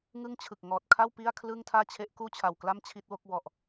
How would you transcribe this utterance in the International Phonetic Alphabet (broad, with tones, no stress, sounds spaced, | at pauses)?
ŋ ɯ˥˩ ŋ t͡ɕʰ ɯ˨˩ k̚ ŋ ɔː˨˩ t̚ kʰ a˥˩ w p i˥˩ a̯ kʰ l ɯ˥˩ ŋ tʰ aː˥˩ t͡ɕʰ e˦˥ ʔ k uː˥˩ t͡ɕʰ a˨˩ w k l a˥˩ m t͡ɕʰ i˥˩ t̚ w o˥˩ k̚ w ɔ˨˩ ʔ